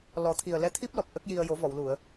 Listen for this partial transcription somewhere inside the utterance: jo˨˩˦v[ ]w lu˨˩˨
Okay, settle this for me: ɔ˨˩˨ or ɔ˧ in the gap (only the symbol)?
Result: ɔ˨˩˨